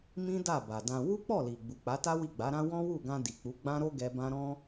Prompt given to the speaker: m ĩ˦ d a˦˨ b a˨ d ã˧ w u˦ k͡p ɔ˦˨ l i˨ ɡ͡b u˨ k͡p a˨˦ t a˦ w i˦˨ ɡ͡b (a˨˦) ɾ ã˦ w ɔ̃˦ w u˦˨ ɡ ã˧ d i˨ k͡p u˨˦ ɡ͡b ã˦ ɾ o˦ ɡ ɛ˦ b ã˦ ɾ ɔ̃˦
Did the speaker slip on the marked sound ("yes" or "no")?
no